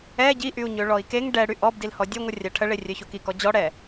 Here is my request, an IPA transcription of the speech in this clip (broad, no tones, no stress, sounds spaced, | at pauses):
ɛ ɟ i ʔ y u̯ ɲ ø ɭ ɔ i̯ k e ŋ ɖ ɛ ɽ y ʔ ɔ b d i l h ɔ dʲ œ ŋʷ ə rʲ a ʈʰ ə ɭ e rʲ œ ç o k i k ɔ d͡ʑ ɔ ɽ ɛ